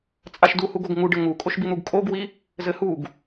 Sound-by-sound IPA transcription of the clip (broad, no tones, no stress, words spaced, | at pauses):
t͡sʼaʃduhuɡoɡ ŋuɖɘ ŋukʼoʃbin̪uɡ kʼoɡwi | zɘhuɡ